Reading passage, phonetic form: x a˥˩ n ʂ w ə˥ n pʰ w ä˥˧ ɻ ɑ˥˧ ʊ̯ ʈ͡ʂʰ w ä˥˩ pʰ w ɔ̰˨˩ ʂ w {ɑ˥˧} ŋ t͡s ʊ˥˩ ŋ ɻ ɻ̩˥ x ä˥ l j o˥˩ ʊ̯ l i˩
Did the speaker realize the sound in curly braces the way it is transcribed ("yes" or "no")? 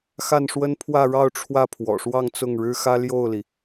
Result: yes